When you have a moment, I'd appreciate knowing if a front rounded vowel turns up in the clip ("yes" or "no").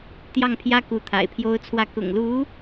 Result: no